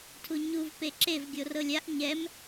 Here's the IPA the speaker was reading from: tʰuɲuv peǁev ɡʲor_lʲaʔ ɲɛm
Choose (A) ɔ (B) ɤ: B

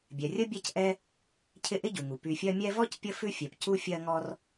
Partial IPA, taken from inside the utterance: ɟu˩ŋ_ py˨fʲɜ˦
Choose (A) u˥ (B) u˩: B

